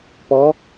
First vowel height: mid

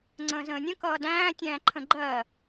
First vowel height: mid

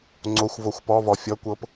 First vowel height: mid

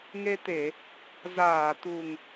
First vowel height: mid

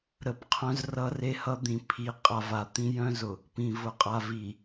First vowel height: mid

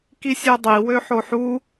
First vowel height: high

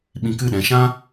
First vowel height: high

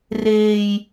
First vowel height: mid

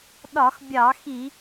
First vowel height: low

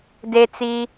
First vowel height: mid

